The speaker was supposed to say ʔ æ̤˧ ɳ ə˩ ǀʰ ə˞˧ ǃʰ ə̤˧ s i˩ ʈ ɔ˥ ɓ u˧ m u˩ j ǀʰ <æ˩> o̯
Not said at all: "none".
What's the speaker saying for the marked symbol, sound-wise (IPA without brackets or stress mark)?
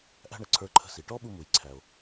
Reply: æ˩